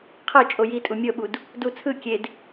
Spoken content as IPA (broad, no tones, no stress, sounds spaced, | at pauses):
qʰ ɤ t͡ʃʼ o j i tʼ u mʲ ɤ ɓ u d | d u t͡sʰ ɯ kʲ e d